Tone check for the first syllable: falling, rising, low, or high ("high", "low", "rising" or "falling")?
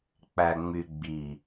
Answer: low